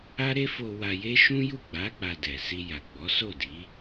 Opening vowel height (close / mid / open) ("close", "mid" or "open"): open